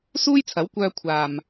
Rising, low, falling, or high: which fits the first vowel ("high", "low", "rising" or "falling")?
high